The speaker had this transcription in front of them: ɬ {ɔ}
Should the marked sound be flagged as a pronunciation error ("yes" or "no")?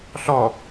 no